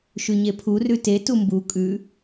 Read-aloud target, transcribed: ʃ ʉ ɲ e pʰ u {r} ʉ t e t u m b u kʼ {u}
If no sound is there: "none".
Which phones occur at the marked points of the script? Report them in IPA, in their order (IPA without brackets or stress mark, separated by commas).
r, ʉ